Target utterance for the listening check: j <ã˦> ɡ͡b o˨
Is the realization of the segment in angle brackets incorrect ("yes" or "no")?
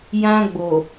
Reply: no